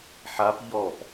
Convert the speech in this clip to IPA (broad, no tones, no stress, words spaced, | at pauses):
ħap ʎɔp